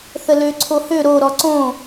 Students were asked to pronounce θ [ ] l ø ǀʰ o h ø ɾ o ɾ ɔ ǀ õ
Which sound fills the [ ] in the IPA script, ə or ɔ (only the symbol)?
ə